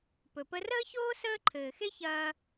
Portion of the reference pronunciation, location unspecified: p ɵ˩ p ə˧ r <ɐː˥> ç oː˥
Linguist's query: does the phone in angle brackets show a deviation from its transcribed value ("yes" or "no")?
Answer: yes